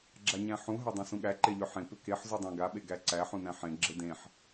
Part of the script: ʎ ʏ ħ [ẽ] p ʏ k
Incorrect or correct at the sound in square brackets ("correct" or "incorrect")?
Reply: correct